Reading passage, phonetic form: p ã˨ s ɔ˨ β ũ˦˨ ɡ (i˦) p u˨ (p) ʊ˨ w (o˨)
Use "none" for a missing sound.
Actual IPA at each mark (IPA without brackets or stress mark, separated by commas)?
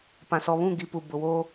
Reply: i˨˦, b, o˦